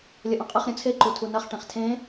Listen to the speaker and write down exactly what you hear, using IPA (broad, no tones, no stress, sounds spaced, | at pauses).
lʲ ɐ ʔ õ qʼ ɨ χ ɾʲ ũ t͡sʰ e ǃ u tʰ u n ɐ χ ʈ ẽ χ tʰ ẽ